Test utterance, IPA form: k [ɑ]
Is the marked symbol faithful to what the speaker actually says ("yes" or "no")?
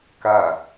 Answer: no